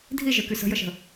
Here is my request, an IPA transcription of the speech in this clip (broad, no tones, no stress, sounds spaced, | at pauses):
dʱ i ʒ ə˞ k y s ə̤ j ə ʃ ə̤